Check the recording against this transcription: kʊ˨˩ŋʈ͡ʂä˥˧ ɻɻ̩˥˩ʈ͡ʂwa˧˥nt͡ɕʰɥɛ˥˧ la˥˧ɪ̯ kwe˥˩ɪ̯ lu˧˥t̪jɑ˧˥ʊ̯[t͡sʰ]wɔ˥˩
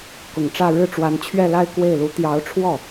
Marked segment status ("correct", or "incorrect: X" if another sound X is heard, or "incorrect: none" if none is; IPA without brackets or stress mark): incorrect: ʈ͡ʂʰ